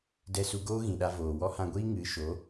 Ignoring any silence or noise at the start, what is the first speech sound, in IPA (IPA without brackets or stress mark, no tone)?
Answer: d